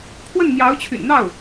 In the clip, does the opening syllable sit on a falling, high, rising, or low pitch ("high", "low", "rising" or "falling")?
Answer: falling